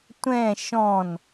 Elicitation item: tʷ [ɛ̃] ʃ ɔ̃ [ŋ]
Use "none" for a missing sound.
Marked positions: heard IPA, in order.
ɛ̃, n

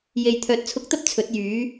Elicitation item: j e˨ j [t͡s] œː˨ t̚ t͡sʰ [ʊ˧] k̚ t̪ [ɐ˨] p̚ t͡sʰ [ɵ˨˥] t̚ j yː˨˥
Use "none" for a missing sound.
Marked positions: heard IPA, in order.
t̪ʰ, ʊ˧, ɐ˥, ɵ˨˥

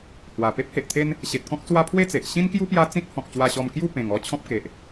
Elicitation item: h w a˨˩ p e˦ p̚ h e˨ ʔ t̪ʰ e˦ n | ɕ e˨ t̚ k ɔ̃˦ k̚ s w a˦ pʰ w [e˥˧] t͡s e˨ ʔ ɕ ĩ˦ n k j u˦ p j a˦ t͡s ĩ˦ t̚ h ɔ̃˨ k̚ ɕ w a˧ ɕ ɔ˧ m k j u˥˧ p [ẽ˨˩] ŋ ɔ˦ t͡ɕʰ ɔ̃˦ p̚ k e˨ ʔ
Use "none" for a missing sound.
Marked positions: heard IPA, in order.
e˥˧, ẽ˨˩

